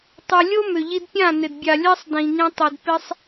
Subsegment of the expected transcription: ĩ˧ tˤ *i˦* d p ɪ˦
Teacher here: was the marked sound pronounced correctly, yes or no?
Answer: no